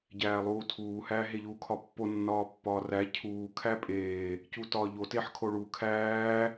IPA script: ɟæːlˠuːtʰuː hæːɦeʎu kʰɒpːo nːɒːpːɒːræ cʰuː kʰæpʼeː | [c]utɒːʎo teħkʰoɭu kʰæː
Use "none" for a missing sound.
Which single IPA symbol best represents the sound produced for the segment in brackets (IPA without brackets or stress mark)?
c